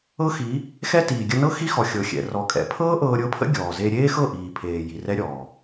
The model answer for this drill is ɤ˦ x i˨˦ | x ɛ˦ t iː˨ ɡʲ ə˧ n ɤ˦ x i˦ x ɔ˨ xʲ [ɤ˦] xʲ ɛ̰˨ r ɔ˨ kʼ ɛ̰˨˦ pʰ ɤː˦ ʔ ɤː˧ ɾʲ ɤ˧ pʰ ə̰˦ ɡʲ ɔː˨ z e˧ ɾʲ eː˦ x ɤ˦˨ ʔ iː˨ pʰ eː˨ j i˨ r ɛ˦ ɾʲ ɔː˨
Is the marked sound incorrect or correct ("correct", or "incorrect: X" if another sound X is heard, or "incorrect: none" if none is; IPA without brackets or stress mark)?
incorrect: ɤ˨